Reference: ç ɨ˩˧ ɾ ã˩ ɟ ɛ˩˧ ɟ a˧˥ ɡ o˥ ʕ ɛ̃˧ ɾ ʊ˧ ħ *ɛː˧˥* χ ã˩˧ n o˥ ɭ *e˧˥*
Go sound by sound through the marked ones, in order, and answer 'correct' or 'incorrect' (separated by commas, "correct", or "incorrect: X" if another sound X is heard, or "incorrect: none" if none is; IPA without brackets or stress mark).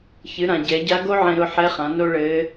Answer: incorrect: ɛ˧˥, incorrect: ɘ˧˥